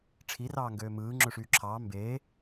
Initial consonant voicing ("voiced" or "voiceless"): voiceless